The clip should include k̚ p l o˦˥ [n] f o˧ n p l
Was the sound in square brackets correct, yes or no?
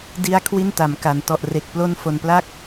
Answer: yes